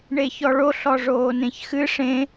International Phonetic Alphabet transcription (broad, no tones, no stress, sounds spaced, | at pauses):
ɳ e ç ɔ ɭ o ɬ ɔ ʐ oː n ẽ ç x ɨ ʂ ẽ